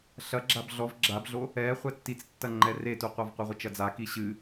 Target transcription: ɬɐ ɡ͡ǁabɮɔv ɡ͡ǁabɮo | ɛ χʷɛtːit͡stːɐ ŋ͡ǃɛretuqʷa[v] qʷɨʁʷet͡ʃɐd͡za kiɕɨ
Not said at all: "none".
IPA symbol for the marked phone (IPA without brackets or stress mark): v